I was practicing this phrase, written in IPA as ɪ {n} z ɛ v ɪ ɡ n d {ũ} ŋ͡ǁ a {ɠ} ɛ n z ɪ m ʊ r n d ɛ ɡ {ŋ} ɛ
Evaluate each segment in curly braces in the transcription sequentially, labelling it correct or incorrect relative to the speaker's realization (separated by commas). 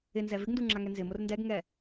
correct, incorrect, incorrect, correct